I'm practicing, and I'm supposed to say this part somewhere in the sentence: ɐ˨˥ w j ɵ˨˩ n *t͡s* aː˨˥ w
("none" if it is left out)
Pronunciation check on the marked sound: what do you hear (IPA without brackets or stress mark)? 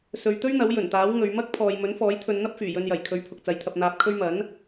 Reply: t̪